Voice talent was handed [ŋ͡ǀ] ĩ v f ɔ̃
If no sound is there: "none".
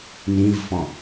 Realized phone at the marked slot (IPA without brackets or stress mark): n